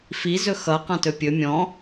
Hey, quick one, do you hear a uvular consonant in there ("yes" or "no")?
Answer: yes